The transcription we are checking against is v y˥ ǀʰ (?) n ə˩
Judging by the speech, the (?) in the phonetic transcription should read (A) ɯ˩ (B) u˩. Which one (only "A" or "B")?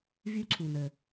B